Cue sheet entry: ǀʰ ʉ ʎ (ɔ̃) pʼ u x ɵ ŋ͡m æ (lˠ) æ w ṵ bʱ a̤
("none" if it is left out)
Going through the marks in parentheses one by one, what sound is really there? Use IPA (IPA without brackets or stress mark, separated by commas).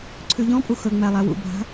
ɔ̃, lˠ